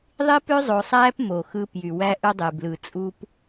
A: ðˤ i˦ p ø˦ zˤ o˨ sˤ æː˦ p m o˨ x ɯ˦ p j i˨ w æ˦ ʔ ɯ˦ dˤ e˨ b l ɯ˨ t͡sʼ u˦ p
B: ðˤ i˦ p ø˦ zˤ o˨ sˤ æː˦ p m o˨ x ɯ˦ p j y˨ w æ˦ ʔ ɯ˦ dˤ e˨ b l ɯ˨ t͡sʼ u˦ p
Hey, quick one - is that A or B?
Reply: B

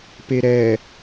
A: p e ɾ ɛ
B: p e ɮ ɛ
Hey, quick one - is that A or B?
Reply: A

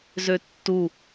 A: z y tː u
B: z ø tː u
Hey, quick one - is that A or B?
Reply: B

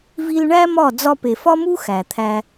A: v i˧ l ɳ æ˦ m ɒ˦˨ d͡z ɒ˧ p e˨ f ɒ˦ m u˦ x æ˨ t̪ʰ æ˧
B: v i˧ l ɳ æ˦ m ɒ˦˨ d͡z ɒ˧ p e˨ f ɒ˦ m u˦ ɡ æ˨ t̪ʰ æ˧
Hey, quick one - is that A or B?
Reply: A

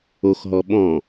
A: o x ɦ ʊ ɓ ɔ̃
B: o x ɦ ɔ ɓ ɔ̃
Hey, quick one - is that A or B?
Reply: B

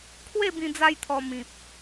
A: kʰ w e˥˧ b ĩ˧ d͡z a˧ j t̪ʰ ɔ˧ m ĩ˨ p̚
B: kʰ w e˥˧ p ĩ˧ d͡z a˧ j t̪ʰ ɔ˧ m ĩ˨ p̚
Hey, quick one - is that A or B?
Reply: A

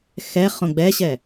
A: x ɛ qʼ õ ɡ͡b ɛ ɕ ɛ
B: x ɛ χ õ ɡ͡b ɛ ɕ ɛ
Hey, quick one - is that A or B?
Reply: B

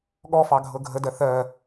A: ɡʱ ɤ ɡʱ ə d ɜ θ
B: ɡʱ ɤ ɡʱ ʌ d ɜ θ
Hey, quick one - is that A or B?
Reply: A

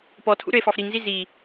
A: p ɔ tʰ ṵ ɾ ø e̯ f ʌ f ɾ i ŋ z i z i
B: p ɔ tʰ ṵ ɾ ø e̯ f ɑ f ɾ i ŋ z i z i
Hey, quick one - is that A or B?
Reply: B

